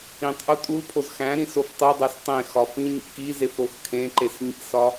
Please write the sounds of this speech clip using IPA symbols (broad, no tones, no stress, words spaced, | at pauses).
ĩtˤʔu tʼulpʰoz xæ̃ ɾĩsoftˤedˤæs tˤẽ xɒfĩɲḭ kizef ɾoxkʰẽǃes ɲḭsɒ